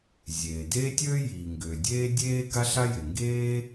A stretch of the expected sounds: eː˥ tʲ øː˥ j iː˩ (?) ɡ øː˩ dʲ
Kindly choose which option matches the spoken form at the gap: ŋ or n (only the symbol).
ŋ